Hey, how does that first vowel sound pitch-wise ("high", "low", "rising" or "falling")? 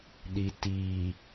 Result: low